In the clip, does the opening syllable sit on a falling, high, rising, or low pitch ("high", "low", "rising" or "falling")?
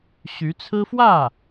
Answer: rising